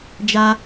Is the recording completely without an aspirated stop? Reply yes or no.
yes